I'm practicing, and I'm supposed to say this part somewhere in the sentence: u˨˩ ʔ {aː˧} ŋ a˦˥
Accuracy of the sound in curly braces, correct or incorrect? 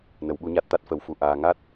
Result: correct